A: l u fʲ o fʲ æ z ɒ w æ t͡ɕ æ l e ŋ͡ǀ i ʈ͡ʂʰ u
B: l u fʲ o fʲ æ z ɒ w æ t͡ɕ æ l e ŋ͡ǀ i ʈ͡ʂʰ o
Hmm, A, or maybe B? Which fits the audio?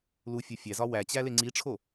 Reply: B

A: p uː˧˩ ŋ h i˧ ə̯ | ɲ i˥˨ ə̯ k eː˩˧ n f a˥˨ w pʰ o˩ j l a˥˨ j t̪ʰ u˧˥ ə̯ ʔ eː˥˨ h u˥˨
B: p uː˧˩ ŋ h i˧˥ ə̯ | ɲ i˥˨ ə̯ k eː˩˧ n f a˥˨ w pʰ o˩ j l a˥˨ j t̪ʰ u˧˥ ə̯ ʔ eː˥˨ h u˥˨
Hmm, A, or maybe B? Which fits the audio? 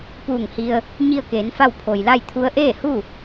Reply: A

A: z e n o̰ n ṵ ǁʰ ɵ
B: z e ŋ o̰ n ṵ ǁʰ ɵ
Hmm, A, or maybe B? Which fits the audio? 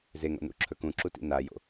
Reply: B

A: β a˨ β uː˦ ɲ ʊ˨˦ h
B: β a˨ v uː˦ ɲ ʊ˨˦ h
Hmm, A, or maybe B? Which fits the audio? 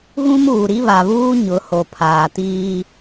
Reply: A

